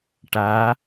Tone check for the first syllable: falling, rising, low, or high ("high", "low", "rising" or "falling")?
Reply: rising